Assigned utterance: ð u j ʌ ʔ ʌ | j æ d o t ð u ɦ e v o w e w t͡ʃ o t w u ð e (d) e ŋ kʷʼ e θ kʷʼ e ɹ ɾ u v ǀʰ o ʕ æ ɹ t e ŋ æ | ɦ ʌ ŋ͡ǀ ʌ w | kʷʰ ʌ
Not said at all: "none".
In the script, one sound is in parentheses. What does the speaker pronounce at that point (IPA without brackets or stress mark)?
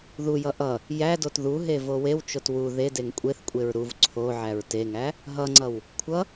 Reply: d